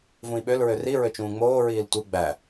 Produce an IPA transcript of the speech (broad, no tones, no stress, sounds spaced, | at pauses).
v ũ i̯ ɓ ø l ɹ ø r i ɹ ø t͡ʃ ũː ŋ͡m oː ɹ iː l tʷ ɯ ɡ͡b æ